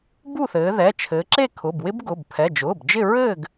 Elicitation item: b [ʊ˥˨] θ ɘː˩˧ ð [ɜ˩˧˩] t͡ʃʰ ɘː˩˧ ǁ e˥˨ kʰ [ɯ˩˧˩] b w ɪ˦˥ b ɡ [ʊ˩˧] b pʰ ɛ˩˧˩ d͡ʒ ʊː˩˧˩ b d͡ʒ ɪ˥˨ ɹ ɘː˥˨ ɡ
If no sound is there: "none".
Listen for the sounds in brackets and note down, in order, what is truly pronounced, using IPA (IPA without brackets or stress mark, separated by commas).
u˥˨, ɛ˩˧˩, ʊ˩˧˩, ʊ˩˧˩